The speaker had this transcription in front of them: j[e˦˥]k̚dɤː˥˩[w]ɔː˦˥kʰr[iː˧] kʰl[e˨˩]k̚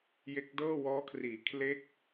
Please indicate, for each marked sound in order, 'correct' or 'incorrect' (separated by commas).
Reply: correct, correct, incorrect, incorrect